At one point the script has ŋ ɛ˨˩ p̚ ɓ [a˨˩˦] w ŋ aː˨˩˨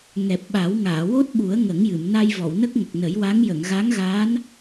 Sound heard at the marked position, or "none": a˨˩˦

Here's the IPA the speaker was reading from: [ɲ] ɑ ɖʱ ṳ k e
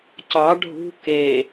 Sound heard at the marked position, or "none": c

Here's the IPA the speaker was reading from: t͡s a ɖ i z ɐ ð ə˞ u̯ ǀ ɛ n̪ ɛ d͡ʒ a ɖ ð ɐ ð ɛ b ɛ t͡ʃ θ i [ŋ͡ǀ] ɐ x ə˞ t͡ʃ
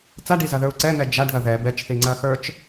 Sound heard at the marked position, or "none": ŋ͡ǀ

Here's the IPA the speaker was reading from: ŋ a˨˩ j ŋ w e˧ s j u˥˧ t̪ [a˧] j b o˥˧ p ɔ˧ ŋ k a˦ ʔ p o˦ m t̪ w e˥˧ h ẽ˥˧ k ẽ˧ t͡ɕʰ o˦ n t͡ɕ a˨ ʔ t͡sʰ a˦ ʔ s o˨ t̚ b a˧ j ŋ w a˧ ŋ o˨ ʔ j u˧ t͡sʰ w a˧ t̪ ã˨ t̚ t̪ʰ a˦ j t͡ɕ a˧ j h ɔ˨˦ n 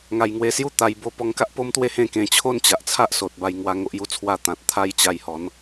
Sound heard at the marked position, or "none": a˧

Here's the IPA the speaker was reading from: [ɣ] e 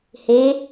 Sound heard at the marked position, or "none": h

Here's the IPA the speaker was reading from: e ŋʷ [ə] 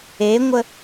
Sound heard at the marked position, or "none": ə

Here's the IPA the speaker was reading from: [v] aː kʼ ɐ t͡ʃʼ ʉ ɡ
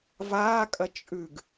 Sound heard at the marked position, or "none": v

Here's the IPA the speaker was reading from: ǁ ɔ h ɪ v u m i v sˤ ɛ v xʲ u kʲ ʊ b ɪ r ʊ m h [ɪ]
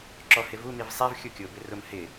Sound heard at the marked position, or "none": ɪ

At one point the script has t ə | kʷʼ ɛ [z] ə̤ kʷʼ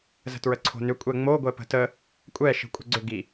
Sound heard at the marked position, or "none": ʃ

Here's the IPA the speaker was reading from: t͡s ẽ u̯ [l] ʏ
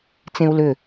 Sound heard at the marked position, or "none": l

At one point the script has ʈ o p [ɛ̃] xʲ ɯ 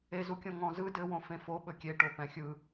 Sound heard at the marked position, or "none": ɛ̃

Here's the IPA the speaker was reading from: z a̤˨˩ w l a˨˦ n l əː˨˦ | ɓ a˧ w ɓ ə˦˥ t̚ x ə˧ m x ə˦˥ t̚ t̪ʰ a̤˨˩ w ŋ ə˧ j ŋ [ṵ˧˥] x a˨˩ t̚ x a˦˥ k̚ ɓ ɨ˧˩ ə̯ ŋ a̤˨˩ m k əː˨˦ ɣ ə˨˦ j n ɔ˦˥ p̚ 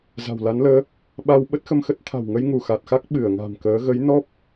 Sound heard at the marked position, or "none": u˧˩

